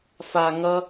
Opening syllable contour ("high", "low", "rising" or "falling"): low